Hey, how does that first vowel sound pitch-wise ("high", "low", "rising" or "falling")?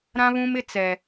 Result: high